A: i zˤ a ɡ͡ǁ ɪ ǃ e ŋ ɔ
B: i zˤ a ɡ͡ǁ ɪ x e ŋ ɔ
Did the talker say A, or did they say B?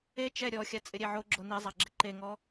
A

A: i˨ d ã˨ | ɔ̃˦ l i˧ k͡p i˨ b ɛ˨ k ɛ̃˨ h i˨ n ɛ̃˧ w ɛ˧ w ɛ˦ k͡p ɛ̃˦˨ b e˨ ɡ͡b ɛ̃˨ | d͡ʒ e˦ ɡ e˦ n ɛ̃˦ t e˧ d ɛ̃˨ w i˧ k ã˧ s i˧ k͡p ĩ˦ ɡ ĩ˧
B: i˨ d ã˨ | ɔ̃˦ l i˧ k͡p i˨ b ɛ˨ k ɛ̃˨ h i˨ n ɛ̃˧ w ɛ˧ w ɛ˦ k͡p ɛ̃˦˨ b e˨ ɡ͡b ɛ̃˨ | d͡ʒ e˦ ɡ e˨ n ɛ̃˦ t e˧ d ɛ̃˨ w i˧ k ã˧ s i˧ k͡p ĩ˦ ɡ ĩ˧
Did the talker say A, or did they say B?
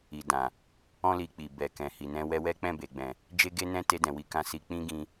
A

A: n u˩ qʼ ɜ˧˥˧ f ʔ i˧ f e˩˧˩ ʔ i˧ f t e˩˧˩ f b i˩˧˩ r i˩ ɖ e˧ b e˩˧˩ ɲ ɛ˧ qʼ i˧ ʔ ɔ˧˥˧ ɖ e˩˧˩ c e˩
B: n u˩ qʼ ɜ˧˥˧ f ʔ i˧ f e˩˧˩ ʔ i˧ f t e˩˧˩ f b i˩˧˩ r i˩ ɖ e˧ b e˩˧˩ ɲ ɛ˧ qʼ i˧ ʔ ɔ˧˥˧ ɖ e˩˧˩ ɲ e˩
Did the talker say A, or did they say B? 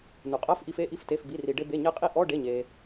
B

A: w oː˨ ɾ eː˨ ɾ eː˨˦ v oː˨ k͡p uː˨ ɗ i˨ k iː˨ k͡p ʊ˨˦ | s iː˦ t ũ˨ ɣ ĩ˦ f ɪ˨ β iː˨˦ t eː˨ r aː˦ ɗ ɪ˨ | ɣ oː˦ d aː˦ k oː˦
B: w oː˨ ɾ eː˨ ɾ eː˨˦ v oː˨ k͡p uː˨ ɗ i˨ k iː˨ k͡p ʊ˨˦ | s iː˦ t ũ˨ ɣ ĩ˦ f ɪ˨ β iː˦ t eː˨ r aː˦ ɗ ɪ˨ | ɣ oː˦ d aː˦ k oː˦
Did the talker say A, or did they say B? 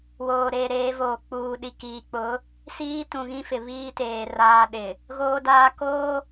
B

